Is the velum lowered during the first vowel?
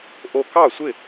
no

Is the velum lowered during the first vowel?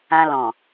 yes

